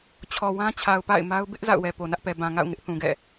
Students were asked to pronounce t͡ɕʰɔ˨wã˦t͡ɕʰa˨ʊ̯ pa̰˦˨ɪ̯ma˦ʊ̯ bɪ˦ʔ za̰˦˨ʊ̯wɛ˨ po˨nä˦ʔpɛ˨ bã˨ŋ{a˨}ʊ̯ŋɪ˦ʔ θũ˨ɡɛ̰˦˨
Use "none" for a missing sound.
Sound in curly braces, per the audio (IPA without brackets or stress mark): a̰˦˨